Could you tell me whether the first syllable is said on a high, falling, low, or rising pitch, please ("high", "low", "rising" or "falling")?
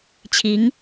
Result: rising